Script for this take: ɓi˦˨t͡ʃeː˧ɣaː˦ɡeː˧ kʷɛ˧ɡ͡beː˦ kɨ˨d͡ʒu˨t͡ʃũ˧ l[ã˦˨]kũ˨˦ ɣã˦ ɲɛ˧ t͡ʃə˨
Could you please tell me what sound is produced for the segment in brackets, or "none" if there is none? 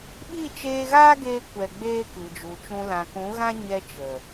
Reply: ã˨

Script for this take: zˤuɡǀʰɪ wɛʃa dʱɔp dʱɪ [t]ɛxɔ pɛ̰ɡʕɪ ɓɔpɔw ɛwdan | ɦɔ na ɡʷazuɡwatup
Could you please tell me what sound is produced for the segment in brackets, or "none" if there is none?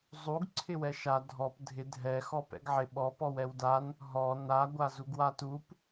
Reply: dʱ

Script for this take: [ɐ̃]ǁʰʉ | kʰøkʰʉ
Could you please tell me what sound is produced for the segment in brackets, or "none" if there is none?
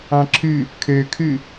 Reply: ɑ̃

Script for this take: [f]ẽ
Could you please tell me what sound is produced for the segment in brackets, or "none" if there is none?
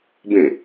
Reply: b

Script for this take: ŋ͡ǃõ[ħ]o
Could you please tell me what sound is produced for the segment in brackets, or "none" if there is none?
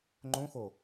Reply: x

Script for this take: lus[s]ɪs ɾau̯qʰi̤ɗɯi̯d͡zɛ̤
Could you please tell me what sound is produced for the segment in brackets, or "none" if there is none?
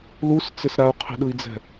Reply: t͡s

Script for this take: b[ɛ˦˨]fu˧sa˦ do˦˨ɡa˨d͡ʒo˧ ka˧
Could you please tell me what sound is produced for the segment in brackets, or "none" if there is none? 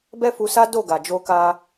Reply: ɛ˦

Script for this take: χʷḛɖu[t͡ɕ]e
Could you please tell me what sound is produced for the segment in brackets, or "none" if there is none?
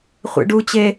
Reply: t͡ɕ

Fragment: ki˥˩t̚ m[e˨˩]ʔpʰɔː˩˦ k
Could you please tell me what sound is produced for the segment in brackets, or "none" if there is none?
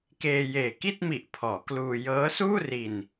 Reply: i˨˩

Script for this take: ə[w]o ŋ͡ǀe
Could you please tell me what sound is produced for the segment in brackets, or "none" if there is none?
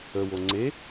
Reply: w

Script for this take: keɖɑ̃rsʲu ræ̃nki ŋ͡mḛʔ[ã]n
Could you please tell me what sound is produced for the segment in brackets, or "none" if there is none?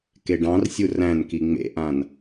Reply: ã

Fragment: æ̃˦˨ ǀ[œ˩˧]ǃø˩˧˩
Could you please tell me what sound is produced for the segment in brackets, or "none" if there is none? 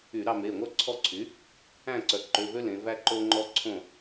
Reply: œ˩˧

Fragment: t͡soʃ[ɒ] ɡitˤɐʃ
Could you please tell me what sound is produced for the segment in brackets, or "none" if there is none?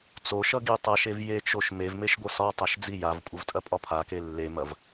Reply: ʌ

